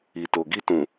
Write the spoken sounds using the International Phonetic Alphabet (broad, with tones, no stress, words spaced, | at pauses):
i˨to˨ ɡi˧tũ˨